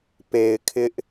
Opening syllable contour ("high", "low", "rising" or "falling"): low